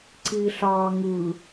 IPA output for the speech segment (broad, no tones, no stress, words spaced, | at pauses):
ǀiːɬɑː ŋɯ